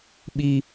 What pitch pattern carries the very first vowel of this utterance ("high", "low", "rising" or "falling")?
high